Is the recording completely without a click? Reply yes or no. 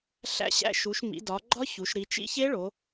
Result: no